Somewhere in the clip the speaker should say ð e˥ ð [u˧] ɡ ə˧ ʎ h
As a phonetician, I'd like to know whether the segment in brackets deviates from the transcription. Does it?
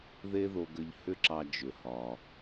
yes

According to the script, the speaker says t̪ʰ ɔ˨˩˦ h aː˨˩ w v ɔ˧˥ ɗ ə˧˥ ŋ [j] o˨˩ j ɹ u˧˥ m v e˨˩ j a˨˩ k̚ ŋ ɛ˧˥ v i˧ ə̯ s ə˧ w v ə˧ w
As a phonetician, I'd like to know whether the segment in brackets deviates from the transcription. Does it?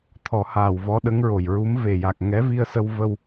yes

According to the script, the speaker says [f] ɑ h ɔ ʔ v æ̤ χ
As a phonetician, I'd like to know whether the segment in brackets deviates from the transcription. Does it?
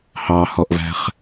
yes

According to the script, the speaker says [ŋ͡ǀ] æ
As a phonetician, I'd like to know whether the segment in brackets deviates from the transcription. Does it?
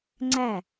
no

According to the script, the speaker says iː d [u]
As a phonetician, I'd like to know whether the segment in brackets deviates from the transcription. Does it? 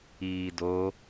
yes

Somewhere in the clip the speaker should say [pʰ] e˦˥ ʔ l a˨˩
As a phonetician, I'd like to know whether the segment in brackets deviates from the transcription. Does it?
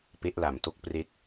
yes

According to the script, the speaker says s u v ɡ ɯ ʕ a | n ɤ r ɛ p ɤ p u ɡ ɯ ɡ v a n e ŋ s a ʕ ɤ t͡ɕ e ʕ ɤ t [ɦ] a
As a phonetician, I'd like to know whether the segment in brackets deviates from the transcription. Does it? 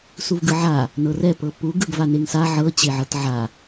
yes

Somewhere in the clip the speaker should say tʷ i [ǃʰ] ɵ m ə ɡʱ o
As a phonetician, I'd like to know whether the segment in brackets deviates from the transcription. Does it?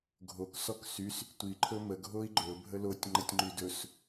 no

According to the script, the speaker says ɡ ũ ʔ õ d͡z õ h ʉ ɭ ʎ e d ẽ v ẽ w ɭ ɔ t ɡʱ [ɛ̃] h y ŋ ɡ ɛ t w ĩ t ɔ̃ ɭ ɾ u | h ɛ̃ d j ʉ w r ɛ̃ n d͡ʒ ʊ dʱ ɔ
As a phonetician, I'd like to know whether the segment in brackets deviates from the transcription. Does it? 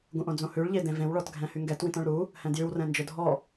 no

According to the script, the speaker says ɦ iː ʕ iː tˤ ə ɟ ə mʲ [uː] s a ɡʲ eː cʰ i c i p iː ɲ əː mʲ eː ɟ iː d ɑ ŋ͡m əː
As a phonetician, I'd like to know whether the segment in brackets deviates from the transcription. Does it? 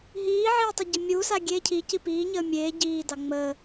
no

